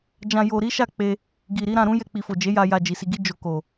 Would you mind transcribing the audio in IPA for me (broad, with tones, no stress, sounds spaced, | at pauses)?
d͡ʒ ã˧ j o˧ ɾ i˦ ʃ a˦˨ k͡p e˧ | ɡ i˨ ɾ i˨˦ ɾ ã˧ ɾ ũ˦ j ɛ˧ k͡p i˨ f o˨ d͡ʒ e˨˦ j a˧ j a˧ d͡ʒ i˨ s i˧ ɡ i˦ d͡ʒ o˧ k o˨